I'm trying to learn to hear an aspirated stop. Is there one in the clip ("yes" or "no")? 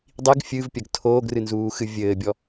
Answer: yes